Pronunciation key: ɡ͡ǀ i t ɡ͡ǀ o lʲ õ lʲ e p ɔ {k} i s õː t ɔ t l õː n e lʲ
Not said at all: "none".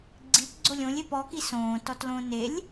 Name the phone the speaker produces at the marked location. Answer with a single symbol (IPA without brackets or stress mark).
k